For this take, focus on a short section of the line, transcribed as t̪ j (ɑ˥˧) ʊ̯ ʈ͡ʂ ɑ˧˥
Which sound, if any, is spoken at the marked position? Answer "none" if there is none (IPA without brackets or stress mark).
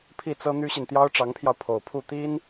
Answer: ɑ˥